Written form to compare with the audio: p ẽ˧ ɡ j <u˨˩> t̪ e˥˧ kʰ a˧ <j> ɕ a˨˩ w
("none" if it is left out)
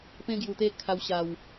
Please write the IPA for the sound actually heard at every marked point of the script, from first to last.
u˨˩, w

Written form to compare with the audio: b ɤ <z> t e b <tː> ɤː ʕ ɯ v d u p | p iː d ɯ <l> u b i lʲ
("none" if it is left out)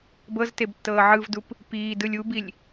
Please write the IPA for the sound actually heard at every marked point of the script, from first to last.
z, tː, lʲ

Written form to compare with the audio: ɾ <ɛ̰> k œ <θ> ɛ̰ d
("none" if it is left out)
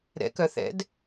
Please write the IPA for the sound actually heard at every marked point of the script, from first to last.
ɛ̰, θ

